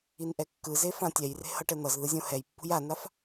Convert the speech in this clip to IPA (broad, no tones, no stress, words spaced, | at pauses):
inʔɛkːɯze fãtʲɛjre̤ hʌʈɛn̪ʌzðɯ zʲõhɛjpːṳj anaf